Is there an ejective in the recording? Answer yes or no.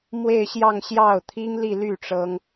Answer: no